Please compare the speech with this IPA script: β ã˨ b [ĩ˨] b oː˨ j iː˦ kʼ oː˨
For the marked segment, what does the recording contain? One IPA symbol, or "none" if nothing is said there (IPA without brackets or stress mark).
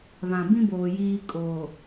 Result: ĩ˦